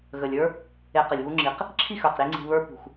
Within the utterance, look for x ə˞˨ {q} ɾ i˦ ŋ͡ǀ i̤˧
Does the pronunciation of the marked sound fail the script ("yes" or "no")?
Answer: no